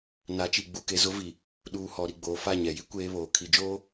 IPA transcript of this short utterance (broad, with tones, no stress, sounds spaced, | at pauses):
n a˨˦ t͡ʃ i˨ ɡ͡b u˨ k e˨ z ʊ˦ v i˨ | ɗ uː˨ h ɔ˨ ɾ i˨ ɡ͡b oː˨ f a˦˨ ɲ ɛ˨ j i˦ kʷ eː˦ β oː˨ kʰ i˨ d͡ʒ oː˦